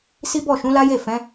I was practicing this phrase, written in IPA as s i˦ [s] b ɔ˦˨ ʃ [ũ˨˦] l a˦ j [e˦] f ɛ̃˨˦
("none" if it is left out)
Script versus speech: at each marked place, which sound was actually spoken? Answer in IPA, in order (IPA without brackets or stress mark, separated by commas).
none, ũ˨˦, e˦˨